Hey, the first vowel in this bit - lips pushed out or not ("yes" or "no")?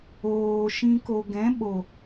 yes